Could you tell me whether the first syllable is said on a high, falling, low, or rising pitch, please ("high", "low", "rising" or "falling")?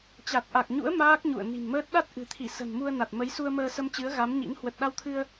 low